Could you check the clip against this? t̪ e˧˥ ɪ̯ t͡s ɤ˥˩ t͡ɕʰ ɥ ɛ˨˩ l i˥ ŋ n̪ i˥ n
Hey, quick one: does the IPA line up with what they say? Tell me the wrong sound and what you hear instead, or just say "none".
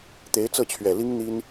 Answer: none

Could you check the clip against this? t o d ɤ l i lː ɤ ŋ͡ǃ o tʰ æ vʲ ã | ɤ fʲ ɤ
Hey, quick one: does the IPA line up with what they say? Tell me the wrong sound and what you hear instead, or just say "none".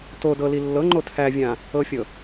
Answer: none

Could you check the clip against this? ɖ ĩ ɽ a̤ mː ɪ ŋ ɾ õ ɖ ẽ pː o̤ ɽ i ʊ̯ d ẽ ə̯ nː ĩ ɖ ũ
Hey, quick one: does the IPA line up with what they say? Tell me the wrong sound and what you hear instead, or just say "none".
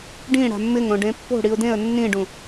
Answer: none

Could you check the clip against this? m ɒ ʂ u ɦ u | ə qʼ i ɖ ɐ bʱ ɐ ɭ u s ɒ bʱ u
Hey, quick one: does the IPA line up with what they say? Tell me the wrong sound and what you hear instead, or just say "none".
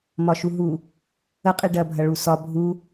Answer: ʂ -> ʃ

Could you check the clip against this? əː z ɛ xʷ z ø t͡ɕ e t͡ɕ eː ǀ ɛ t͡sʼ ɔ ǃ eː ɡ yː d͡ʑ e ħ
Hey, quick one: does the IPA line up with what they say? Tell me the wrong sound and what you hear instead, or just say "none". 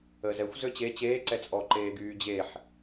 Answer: none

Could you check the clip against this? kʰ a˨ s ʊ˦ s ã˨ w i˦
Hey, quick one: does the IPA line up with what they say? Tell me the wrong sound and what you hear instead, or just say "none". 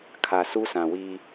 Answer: ʊ˦ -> u˦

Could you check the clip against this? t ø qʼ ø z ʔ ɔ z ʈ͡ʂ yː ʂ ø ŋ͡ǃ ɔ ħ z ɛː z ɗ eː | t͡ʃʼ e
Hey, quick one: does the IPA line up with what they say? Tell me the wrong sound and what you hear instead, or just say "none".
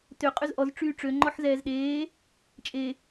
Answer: ʂ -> ʈ͡ʂ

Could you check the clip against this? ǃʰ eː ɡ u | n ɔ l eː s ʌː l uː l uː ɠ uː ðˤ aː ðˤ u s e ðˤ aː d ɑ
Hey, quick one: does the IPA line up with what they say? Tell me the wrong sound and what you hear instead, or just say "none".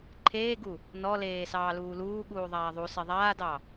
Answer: ʌː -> ɑː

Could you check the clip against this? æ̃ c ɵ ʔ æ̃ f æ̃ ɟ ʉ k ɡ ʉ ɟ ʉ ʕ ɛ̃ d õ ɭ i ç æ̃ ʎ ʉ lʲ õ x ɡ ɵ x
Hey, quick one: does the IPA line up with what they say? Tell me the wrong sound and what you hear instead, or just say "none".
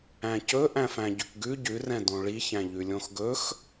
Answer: ʕ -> r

